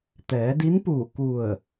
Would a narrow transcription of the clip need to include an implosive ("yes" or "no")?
no